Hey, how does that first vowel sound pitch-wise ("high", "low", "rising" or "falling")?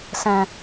low